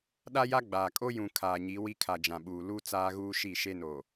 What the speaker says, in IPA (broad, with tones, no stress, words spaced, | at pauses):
ɗa˦ja˦ ɡ͡baː˨ kʼo˦jũ˨ kʰaː˨ɲi˨˦ wi˦kʰa˨d͡ʒã˨ɓuː˨ lu˦ t͡saː˦ɣuː˦ ʃi˦˨ʃe˦noː˨